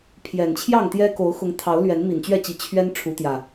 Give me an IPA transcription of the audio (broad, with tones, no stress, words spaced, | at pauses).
pʰjɛ˨˩nt͡ɕʰjɑ˥˨ŋt̪jɛ˦ ko˨˦ʊ̯xʊ˨˦ŋ t̪ʰɑ˨˦ʊ̯lɥɛ˨˦n mi˨˩nt͡ɕɥɛ˥˨t͡ɕi˨˦ t͡ɕʰɥɛ˦nʈ͡ʂʰu˨˦ t̪jä˨˩